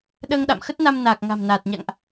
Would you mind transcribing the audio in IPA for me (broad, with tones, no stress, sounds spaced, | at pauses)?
ɗ əː˧ ŋ ɗ a̰˧˨ m x ə˦˥ t̚ n a˧ m n aː˨˩ k̚ ŋ a̤˨˩ m n aː˨˩ t̚ ɲ a̰˧˨ ŋ ʔ